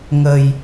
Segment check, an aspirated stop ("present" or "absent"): absent